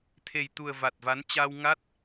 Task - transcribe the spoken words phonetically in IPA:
t̪ʰe˨˩jt̪u˨˩ə̯ va˨˩t̚va˨˦nt͡ɕa˧w ŋa˦˥t̚

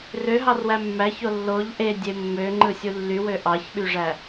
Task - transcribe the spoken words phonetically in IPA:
røɦɑrwæ mːæço lːoʎ ʔedʲe mːøŋ͡ǃɯsʲu lːywø ʔɑçɓyʐæ

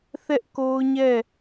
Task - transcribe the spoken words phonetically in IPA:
θɛ˦ʔko˦ʊ̯ɲɛ˦˨

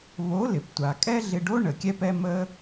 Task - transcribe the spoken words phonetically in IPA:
βo˨˦ lɪ˨ptʷa˨ kʼɛ˦ɮɪ˧ɖo˦ ɳə˨ kʲɛ˦pɛ˦ mə˦

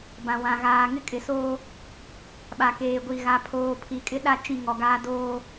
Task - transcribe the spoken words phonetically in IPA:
bã˨wã˨ ɣaː˨ ŋɪ˦kʼɪ˨soː˦ | ɓa˨keː˨ɡʷi˨ ɣa˨pʰoː˨ pʰi˨kʼɪ˦ɗa˦ t͡ʃĩ˦˨ŋɔ˨ɡaː˦ doː˦

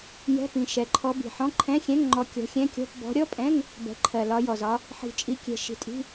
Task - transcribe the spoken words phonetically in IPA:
jɛ̤˧˥˧pĩ˨˩ ʃɛ˨˩ǃʰɔ˨˦bi̤˨˩ħɔ̃˧˥˧ ǃʰɛ̃˧˥˧xʲɛ̃˧˥˧ŋŋ͡ǃɔ˨˦ kʲɔ̤˨˦xʲɛ̃˧˥˧kʲɔ̤˧˥˧p bɔ̤˨˦ɾʲɔ˧˥˧pʼɛ̃˧˥˧ŋ | bɛ̤˨˩ǃʰɜ˨˩lɒ˨˦jɔ˨˩z ɒ˨˦ | ħi̤˨˩t͡ʃʼi˨˦kʲɛ̤˨˩ ʃi̤˨˩tʼi̤˧˥˧

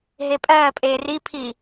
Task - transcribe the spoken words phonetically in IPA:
ɦepʼɜːpʼeː ripʰi

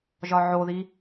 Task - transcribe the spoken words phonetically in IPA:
ʒɒʕoði

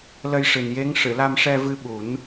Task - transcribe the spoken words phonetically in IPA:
lə˧jʂɨ˨˩nje˧˥ŋ ʂɨ˨˩˨la˧mʂɛ˧ vɨ˧ɓu˨˩˦n

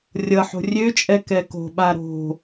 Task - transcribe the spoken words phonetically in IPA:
rʲʌħo̤ rʲøt͡ʃʼɛ kɛko̤ɓa ɾo̤

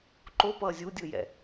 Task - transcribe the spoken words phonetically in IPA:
ǃopʌː zʲudʲɯjɛ̰

